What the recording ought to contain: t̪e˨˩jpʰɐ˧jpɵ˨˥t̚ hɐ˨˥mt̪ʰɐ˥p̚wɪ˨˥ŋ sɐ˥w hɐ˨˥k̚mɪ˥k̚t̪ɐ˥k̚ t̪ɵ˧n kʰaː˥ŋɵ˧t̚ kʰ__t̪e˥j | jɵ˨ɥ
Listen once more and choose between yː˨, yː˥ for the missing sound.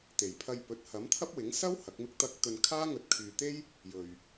yː˨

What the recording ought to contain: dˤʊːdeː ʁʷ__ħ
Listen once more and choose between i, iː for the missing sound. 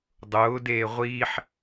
iː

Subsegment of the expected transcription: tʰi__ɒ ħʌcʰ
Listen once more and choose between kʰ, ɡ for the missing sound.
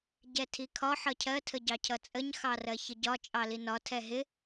kʰ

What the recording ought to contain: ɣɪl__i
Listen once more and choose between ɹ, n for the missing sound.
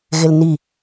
n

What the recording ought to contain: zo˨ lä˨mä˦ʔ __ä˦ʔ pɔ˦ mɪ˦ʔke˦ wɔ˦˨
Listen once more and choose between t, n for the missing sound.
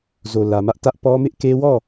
t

